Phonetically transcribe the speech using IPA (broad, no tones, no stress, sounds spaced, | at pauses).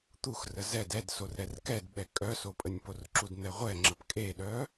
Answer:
t̪ u x r ə z ɛ d ɛ d s o r ɾ ɛ r k ɛ d ɓ ɛ kʼ œ s o pʼ ə nʲ p o r ǁ u d n̪ ɛ ʁʷ ɛ ŋ͡ǁ ə p kʼ e ɗ œ